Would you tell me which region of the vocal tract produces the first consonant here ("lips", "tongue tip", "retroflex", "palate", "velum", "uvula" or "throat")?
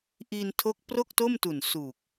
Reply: throat